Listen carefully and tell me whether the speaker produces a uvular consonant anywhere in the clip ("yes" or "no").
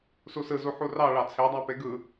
no